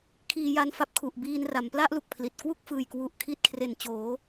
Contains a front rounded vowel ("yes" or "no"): no